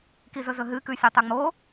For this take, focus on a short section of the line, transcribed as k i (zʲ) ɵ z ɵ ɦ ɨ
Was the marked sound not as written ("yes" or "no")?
yes